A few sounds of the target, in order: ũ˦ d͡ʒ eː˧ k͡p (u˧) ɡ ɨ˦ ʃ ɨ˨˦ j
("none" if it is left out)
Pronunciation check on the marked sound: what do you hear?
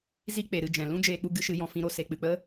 u˧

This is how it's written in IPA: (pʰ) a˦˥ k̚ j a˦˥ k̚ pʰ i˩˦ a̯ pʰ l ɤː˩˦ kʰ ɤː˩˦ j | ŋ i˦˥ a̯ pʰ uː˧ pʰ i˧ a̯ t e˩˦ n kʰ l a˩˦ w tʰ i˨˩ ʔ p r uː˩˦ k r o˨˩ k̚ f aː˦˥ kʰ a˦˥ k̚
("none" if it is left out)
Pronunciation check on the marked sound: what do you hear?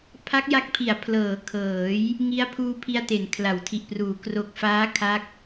pʰ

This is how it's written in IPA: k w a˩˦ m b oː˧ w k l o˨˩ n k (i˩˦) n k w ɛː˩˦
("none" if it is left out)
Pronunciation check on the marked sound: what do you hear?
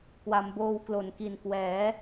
i˨˩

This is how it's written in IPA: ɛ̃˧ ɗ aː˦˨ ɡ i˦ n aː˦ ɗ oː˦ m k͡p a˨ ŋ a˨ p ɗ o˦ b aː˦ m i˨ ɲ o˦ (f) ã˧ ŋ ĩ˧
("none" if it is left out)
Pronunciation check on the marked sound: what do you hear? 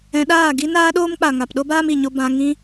b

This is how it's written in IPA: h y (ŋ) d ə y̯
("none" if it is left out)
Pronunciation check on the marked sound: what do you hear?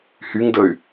ŋ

